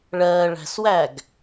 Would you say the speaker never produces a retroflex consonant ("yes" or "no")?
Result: no